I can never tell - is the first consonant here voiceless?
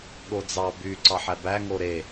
no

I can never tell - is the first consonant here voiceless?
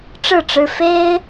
yes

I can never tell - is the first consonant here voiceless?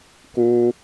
yes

